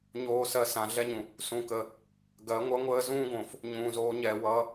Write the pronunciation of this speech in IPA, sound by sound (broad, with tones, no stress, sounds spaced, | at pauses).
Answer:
ɲ oː˨ s ɜ˨ s ã˨ ɮ ɛ˦ ɲ ũ˨ | s ũ˨ k ə˨ | ɡ ɜ˨˦ ŋʷ ʌ˦ ŋʷ əː˦ z ũː˦ ɡ õ˨ f | ɲ ũː˨ z oː˨˦ ɲ ɛ˨ w ʌ˨˦